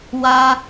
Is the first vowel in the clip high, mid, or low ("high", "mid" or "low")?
low